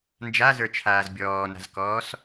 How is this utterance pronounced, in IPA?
n d͡ʒ a z ə˞ t͡ʃʰ aː z bʲ ɔː n a̤ z k ɔː s

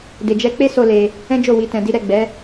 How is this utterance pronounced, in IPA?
d e˧ d͡ʒ ɛ˦ k͡p e˦ s o˧ l e˧ | ɛ̃˦ d͡ʒ o˦˨ w i˧ t ɛ̃˧ d i˦ ɾ ɛ˦˨ ɡ͡b ɛ˨˦

